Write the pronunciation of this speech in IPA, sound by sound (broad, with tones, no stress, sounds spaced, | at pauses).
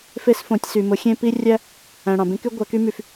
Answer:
f e˦ s f õ˨˦ tʲ s y˨ m ʊ˨˦ xʲ ẽ˦ p i˦ rʲ æ˦ | æ̃˨ ɽ ɑ̃˨ b ẽ˦ k y˦ ɡʷ æ˨˦ k y˦ m y˨ f